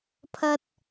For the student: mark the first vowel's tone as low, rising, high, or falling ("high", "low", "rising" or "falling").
high